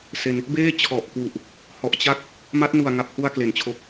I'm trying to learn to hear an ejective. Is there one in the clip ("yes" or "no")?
no